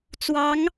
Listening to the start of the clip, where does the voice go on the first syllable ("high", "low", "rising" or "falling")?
rising